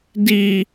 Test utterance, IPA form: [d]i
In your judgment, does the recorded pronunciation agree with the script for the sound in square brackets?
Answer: yes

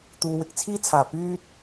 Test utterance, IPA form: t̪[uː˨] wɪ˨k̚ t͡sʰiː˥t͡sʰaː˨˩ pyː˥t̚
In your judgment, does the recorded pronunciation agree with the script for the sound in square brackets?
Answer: yes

